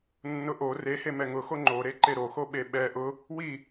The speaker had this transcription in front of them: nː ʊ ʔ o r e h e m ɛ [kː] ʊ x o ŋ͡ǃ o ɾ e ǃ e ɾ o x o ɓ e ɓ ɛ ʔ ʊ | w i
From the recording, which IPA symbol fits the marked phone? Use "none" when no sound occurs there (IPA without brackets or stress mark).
ŋ